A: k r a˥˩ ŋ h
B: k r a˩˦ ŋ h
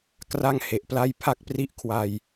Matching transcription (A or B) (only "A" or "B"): A